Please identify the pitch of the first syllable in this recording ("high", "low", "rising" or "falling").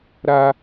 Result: high